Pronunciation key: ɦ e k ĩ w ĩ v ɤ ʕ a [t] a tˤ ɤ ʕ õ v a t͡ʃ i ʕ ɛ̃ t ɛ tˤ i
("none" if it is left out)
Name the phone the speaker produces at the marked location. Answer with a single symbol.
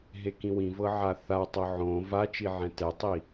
θ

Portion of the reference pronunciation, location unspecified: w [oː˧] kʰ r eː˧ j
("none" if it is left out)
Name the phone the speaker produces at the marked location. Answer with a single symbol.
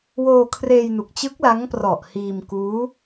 oː˧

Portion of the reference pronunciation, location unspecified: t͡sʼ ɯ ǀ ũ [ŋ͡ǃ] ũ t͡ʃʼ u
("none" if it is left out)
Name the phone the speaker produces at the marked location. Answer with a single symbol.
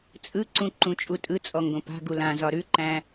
ǃ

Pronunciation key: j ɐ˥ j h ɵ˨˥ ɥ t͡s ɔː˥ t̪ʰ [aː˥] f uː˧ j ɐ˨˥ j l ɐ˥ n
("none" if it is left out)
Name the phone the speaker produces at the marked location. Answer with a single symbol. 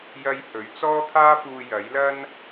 aː˥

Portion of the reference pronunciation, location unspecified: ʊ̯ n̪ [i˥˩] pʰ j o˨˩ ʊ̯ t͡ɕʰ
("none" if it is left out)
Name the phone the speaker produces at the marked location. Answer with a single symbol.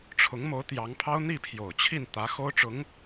i˥˩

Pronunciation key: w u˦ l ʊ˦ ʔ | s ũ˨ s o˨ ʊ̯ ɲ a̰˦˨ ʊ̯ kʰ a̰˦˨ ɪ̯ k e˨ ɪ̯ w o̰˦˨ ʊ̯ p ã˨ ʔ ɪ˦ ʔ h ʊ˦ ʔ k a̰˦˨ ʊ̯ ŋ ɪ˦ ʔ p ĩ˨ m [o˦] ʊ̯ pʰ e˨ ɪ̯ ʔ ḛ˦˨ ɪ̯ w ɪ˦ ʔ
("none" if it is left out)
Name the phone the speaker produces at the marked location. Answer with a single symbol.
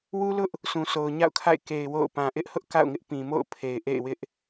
o̰˦˨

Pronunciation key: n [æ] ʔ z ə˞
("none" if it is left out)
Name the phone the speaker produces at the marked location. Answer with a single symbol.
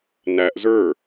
æ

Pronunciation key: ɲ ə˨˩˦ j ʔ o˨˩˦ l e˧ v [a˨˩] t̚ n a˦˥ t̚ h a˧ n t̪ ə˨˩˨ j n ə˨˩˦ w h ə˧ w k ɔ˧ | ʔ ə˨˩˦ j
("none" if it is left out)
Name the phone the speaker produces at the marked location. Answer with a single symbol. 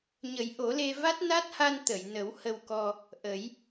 a˦˥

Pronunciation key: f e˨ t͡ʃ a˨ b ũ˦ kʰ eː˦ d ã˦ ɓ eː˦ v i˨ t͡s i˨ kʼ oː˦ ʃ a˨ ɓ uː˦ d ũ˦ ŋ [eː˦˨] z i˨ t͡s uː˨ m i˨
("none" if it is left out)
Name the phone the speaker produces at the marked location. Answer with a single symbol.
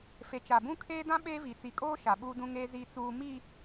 eː˦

